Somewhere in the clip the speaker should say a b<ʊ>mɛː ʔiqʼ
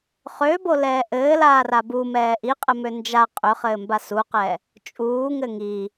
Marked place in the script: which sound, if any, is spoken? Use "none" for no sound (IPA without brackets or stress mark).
u